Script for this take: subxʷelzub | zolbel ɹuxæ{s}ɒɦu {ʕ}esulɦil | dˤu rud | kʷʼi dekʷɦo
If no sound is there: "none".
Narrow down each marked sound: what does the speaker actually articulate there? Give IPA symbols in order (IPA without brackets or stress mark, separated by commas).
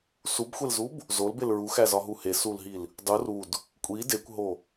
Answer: z, h